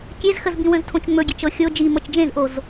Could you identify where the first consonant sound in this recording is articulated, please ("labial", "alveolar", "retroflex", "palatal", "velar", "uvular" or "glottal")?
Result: velar